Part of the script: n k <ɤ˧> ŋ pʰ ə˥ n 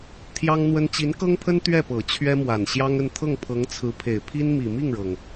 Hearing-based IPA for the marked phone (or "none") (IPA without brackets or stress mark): ɤ˥